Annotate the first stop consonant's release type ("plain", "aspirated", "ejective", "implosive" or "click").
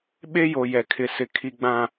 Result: implosive